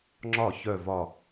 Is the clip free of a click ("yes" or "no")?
no